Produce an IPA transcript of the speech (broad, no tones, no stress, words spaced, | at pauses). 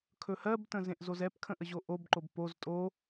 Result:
kʰɵhɜbtə̃ zẽʔzozɛpkʰə̃ ʔəʑoʔobǃob poz tʼo